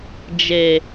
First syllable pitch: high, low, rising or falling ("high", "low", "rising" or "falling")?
low